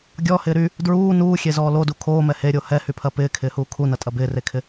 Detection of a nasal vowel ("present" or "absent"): absent